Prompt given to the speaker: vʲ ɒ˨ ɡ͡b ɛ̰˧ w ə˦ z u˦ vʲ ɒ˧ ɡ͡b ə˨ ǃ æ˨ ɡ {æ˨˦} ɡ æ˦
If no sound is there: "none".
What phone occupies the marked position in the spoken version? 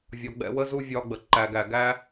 æ˨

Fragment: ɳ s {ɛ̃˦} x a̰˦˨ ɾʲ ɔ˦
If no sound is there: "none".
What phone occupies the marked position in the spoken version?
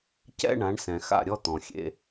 ɛ̃˨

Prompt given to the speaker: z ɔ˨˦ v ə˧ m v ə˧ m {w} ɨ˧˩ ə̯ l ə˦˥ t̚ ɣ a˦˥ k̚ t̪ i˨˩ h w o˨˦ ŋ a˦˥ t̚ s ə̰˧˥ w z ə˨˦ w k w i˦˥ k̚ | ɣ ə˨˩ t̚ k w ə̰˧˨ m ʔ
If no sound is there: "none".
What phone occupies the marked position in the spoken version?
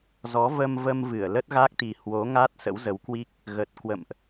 v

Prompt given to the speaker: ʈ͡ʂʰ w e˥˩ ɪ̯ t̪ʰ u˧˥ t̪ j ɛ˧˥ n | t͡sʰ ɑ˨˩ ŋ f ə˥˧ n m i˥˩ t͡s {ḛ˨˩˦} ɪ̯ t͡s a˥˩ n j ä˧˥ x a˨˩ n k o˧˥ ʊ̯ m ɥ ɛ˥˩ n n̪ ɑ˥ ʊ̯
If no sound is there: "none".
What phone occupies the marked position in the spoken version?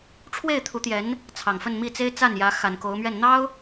e˥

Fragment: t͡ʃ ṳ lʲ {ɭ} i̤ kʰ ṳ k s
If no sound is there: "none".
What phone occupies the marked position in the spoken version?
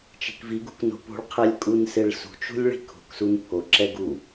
ɭ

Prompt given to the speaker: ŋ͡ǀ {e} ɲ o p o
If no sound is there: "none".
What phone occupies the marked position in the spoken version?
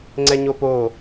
ɛ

